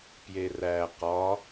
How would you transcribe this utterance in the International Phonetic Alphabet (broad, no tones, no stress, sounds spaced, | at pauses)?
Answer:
p j e r æ q ɒ